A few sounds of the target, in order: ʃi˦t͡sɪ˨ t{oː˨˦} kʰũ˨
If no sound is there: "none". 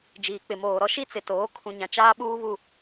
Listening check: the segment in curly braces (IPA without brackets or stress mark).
oː˨˦